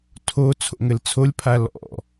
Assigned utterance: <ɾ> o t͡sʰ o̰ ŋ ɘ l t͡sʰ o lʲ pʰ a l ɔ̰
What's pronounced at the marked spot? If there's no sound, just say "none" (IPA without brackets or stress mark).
tʰ